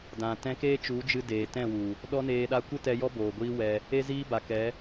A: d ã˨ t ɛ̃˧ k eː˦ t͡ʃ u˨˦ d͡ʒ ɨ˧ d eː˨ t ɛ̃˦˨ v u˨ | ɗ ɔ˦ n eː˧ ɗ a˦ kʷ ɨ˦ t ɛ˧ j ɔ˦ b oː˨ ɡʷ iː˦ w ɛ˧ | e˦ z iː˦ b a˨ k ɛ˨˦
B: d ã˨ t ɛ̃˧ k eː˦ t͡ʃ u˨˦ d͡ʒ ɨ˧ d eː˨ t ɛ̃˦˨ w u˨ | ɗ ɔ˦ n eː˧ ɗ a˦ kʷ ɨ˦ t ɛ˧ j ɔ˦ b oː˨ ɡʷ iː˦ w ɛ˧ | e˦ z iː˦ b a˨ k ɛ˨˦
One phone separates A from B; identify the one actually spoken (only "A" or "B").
B